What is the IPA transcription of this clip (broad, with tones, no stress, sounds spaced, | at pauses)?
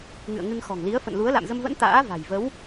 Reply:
ŋ ɨ̰˧˨ ə̯ ŋ ɨ˧ ŋ x ɔ̤˨˩ ŋ l i˨˦ ə̯ f ə̰˧˨ n l u˨˦ ə̯ l a̰˧˨ m z ə˧ m v ə̰˧˥ n t̪ a̰ː˧˥ v a̤˨˩ j v ə˨˦ w